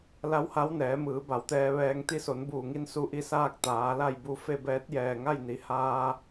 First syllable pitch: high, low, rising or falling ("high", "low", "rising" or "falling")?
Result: rising